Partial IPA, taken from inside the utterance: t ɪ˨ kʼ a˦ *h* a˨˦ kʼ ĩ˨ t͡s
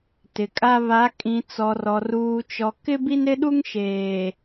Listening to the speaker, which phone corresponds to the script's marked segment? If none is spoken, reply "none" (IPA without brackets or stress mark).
β